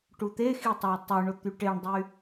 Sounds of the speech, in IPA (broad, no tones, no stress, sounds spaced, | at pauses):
ʈ u t̪ e x i tˤ ɑ tˤ y ɳ o t̪ y ʈ e ɳ dˤ y